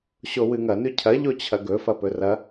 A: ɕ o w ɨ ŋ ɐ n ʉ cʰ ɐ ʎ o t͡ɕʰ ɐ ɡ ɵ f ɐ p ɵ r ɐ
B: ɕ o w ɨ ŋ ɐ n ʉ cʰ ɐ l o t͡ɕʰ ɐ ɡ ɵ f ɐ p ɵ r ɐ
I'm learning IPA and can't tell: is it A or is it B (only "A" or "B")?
A